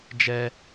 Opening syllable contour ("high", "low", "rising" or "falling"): high